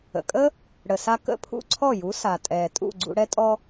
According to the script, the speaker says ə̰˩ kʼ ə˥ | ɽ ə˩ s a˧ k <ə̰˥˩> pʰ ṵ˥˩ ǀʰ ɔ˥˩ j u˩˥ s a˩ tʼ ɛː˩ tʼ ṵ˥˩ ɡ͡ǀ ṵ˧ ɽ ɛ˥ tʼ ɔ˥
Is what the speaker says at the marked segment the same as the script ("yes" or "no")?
yes